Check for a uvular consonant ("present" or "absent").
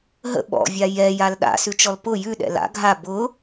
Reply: absent